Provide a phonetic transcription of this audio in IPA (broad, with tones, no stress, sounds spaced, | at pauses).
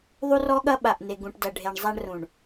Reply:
ðˤ u˦ r ɔ˦ ɠ ɐ˦ ɓ a˨ ʔ n e˨ ɡ ũ˨ ʈ d ɐ˨ ɖʱ e˨ ɳ zˤ a˦ ɳ r ũ˨ ɳ